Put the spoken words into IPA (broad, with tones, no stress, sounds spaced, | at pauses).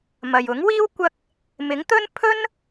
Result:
m ɐ˨ j ʊ˨˥ ŋ w iː˥ w kʷ ɐ˥ k̚ | m ɪ˨˥ ŋ t̪ ɵ˥ n pʰ ɵ˥ n